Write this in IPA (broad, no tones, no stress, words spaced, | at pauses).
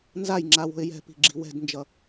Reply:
nzajŋ͡ǁa wo̤ɪ̯jɛ̤pi̤ ɡ͡ǁi̤wɛ̤dnd͡ʒʌ